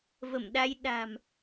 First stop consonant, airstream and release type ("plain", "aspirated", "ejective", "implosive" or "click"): implosive